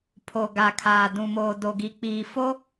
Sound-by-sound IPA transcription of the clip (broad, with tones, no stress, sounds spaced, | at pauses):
pʰ o˨ ɡ a˨ kʰ aː˨ d ũ˨ m oː˨ d o˨ ɡ i˨ k͡p iː˨ f o˦